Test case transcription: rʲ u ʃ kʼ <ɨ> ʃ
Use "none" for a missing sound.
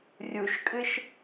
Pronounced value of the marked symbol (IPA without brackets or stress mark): ɨ